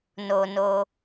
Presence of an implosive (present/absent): absent